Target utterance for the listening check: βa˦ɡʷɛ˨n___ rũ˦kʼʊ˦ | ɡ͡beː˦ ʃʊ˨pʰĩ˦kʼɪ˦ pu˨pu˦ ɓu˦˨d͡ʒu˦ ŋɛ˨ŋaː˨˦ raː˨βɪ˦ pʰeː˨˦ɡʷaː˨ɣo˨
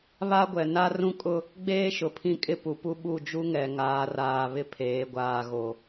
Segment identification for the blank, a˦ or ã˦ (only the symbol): a˦